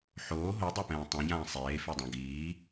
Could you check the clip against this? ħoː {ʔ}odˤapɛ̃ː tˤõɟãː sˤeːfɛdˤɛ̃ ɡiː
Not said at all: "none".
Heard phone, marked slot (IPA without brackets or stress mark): ɦ